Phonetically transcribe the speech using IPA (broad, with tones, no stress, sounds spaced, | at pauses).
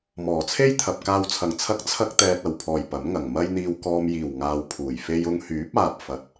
m ɔː˨˩ t͡sʰ e˥ j t̪ʰ ɐ˨ p̚ k aː˨ w t͡sʰ ɐ˨˩ ŋ t͡sʰ ɐ˧ k̚ t͡sʰ ɐ˥ k̚ t̪ ɛː˨ t̚ ɐ˨˩ w pʰ ɔː˨˩ j p ɐ˨˥ m ŋ ɐ˨˩ ŋ m ɐ˧ j n̪ iː˨ w k ɔː˨ m j iː˨˩ w ŋ aː˨ w pʰ uː˨˩ j f e˧ j ʊ˧ ŋ h yː˨˥ p̚ aː˨ p̚ f ɐ˨˥ t̚